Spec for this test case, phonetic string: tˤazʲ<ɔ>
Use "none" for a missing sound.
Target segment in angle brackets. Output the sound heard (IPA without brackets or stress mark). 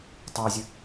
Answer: ʊ